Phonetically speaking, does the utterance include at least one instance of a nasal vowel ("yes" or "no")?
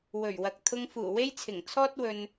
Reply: no